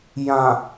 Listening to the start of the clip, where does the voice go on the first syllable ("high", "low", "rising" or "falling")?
low